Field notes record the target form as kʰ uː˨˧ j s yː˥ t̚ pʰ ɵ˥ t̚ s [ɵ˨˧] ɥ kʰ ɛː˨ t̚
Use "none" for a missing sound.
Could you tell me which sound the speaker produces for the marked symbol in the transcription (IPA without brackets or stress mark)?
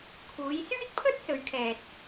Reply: ɵ˨˧